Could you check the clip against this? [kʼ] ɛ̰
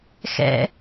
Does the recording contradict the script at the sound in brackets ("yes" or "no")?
yes